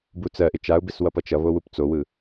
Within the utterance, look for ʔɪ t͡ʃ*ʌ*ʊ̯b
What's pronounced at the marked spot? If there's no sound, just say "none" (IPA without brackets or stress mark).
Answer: a